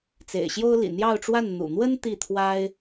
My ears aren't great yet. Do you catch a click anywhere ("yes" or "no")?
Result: no